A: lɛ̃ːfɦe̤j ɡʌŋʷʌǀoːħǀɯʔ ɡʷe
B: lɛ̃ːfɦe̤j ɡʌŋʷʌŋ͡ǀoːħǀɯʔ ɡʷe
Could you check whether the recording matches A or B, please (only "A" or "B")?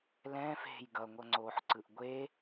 B